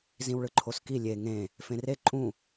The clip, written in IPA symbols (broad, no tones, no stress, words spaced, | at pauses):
zĩwɭɯǃʰoski lʲe ŋẽ | fẽre ǃʼũ